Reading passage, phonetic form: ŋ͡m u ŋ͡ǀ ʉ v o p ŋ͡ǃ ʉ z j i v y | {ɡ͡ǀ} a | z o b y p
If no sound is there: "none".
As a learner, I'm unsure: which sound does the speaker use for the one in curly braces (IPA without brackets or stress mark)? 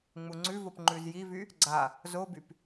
ɡ͡ǀ